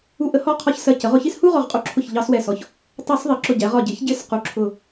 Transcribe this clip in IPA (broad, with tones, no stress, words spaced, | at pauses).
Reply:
u˧˩˧ ʔə˩˧hɔ˧˩qʰɒ˧˩ç sɜ˧˩cə˩˧ʁ ʊ˧˩˧çi˥˧s hu˥˧ʁɔ˧˩ʁqʼu˧˩˧ǁʰʊ˧˩ç ʎɑ˧˩˧swɛ˧˩sɔ˩˧ç | tˤɑ˧˩˧s ðˤɪ˩˧ǁʊ˧˩ɟɛ˩˧ʁɒ˧˩ ɟɪ˩˧çɟɪ˧˩˧s qu˧˩ ǁʰʊ˧˩